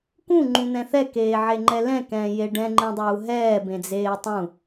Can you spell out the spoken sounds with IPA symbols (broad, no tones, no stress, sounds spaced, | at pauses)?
k ũ ŋ͡ǃ ũ n̪ ɛ̃ θ ɛ k eː ʕ e ŋ͡ǃ ɛ l ɛ̃ k ɛ̃ː j e ɖ ɛ̃ ŋ͡ǃ ẽ dˤ uː ɦ ɛː b ẽ d͡z eː tˤ ũ